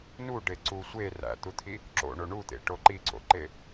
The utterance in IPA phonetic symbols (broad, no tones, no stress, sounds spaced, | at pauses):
n u ɖ e ǀ u sʷ e r æ̰ t̪ u t̪ʰ i | ǁ o̰ ɳ o ɳ u t̪ ḛ ʈ o ǃ i ǀ o̰ ǃ e